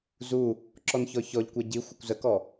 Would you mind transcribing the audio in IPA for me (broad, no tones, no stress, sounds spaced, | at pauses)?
z u | ǁ ɔ n ç ɔ ç ɔ ʎ kʷ ɛ ɟ i xʷ ɐ kʷ z ə k ɔ